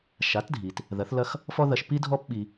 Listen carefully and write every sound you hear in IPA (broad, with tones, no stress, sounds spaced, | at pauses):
ʃ a˩˥ t dʱ i˩ t | ð ɐ˩˥ θ l ɐ˥ x | f ɔ˥ ð ɐ˧ ʃ p i˥ dʱ ɔ˥ p ɓ i˧